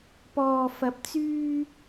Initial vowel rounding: rounded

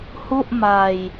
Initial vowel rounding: rounded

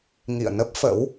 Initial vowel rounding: unrounded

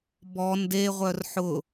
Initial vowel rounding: rounded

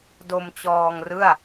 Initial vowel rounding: rounded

